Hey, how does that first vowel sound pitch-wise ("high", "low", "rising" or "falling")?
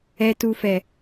low